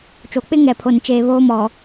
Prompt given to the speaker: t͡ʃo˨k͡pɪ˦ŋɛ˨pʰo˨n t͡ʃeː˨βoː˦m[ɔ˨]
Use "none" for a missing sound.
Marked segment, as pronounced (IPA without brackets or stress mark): ɔ˨